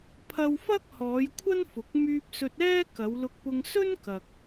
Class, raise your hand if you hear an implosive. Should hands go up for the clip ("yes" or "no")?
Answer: no